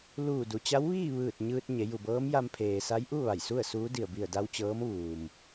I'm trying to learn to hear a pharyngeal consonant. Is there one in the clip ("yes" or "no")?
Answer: no